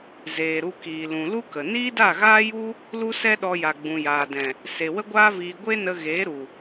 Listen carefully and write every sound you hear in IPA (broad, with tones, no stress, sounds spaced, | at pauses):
z eː˨ ɾ u˧ k iː˨ l ũ˨ l u˦ k ə˨ n iː˦ d a˦˨ ɣ aː˦ j u˦ | l u˦ s ɛ˦ ɗ ɔ˧ j a˨ ɡ͡b ũ˨ j aː˨ d ɛ̃˨ | s e˨ w ə˦ ɡʷ aː˦ v iː˧ ɡʷ e˦ n ə˧ ɣ eː˨˦ ɾ u˨